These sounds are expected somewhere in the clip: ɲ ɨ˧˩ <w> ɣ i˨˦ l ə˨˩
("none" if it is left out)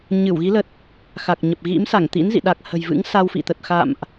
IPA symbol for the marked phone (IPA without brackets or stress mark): w